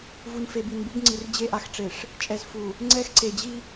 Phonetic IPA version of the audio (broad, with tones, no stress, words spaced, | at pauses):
vu˨nfe˨ bi˨nbu˦b ŋ͡ǀi˨r d͡ʑe˦˨ʔa˦xʈ͡ʂe˨ʂ | t͡ʃʼɛ˨zfu˨ | ŋ͡ǀɛ˦x ǀe˨ d͡ʑi˦